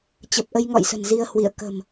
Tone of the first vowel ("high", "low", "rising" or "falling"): low